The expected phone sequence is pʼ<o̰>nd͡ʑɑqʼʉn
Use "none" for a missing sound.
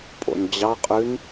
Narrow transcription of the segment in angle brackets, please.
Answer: o̰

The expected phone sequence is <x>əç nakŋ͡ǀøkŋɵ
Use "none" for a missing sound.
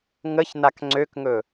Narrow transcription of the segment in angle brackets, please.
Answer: ŋ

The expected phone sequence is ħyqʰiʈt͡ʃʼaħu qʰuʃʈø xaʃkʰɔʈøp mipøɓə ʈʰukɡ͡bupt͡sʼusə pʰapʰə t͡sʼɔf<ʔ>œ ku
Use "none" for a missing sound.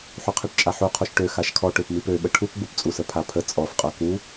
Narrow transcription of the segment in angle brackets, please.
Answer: qʼ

